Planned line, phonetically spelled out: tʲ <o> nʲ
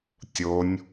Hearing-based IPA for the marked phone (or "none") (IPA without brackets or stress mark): o